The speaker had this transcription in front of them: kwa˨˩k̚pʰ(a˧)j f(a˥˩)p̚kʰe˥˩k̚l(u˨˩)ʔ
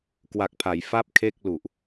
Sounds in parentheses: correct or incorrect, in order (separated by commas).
incorrect, correct, correct